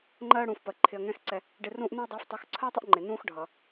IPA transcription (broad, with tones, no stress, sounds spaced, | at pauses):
ŋ͡ǃ ɜː˦ ɽ ũː˨ f p ɜ˨ ǃʰ ɪ˧ ɐ̯ ŋ ɛ̃ː˦ x ǀ ɛ˧ | ɖ ɪ˧ r ũː˦ ʔ n ũ˦ ɐ̯ dˤ ɛː˧ f tˤ u˨˦ x ǀʰ ɜː˦ tˤ ə˦ ʔ ŋ͡ǃ ɪ˨ n ũː˦ x ɖʱ ʌ˨